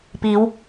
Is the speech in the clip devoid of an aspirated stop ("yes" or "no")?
yes